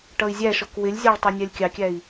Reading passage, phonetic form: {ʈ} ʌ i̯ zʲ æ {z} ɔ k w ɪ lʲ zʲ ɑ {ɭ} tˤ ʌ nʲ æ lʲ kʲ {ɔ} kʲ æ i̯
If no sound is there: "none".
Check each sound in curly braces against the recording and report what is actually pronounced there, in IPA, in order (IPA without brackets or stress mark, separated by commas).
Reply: ʈ, ʃ, ɭ, ɑ